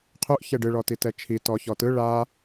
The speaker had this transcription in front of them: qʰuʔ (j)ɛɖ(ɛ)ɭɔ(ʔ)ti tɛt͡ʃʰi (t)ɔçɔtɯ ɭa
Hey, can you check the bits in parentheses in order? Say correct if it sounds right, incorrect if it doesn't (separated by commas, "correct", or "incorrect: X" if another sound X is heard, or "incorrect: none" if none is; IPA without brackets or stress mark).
incorrect: ç, incorrect: ɨ, incorrect: none, correct